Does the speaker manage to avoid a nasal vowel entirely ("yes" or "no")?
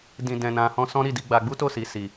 no